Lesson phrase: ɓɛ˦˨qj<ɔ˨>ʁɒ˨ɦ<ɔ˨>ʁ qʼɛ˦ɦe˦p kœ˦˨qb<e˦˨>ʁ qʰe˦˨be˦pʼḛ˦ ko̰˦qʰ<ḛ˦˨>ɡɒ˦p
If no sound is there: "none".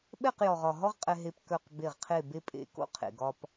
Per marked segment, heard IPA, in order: ɔ˨, ɔ˦, e˦˨, ḛ˨

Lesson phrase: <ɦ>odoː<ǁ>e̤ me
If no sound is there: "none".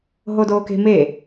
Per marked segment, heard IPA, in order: ɦ, k

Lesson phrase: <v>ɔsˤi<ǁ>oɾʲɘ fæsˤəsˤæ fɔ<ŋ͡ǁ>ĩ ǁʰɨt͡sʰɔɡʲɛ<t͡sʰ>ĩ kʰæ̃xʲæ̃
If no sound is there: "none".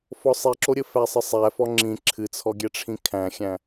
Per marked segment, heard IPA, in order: f, ǁ, ŋ͡ǁ, ʈ͡ʂʰ

